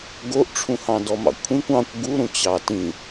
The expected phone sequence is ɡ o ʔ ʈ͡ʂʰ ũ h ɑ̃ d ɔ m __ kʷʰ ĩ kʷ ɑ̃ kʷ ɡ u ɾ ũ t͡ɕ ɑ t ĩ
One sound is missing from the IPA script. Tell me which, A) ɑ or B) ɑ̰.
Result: B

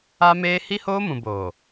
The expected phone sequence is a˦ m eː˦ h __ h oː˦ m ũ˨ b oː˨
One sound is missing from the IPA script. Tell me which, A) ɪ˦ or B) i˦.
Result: B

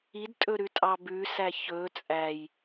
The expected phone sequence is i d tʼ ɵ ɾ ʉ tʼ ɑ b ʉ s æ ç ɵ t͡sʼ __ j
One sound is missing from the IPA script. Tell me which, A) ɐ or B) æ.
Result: B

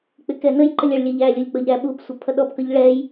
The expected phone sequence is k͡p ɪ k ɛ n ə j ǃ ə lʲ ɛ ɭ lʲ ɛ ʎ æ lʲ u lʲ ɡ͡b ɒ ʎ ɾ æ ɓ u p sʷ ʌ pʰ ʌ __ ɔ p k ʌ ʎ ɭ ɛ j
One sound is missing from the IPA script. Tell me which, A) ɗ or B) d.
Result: A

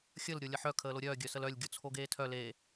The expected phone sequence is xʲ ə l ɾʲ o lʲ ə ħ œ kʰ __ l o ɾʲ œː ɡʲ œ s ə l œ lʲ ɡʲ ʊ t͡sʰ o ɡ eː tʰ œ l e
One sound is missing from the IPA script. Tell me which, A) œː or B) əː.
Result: B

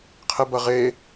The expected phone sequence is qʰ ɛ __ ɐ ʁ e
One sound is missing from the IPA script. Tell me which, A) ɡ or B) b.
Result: B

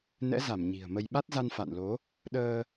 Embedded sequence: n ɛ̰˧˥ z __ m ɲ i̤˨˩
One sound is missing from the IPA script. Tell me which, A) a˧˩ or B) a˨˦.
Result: A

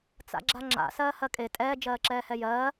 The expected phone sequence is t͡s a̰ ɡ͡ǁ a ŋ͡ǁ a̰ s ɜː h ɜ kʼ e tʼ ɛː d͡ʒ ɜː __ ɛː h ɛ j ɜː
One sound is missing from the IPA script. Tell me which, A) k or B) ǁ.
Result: B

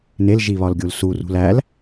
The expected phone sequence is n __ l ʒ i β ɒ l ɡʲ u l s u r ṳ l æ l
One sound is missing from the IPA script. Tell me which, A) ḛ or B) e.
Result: B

